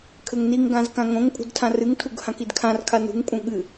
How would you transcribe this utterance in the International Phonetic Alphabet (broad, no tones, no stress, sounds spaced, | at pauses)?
kʰ ɘ ŋ n i ŋ ɡ ã z k ã ŋ õ ŋ pʼ ṳ d tʰ ã r ɨ ŋ tʰ u ɡ h ã k i d kʰ ã r kʰ a n ṳ ŋ pʼ ũ ɠ ɨ